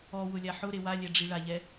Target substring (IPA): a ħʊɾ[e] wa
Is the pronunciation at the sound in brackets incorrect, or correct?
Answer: correct